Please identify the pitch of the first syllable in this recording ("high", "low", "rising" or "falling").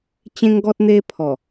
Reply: high